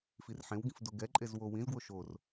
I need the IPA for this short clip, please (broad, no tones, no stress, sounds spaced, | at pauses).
f i r ħ ẽ w ɡ ĩ f d o ɡ ɛ ǃʼ e z w o w ĩ z ɡ w o ʃ o r